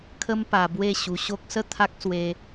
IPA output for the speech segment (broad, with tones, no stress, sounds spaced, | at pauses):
kʰ ə˦ m p a˧ b w e˥˧ ɕ u˧ ɕ o˦ k̚ s ə˥˧ t̪ʰ a˦ k̚ s w e˦